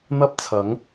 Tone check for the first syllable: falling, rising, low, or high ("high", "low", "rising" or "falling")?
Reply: high